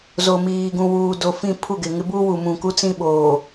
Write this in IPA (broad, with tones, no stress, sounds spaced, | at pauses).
z o˨ m iː˨ ɡ ũ˨ w uː˨ d o˨ f ĩ˦˨ pʰ u˦˨ ɡ ɪ˨ ŋ ɪ˦ b u˦ w u˨ m ũ˨ k u˦ t͡s ĩ˦ ɓ oː˨